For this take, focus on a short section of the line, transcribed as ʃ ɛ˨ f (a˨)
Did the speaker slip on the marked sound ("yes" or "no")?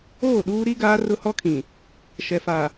no